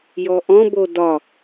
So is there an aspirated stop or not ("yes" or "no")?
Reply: no